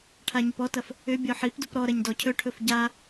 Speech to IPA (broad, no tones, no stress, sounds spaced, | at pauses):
ʈʰ a ɲ ʏ p ɔ t ɐ f | ʏ bʲ ɔ ħ i p d u p ɾ ɔ ɾ ɐ ɲ d ɔ cʰ ɵ ʈʰ ɵ f ɟ a